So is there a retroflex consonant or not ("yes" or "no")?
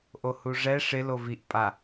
yes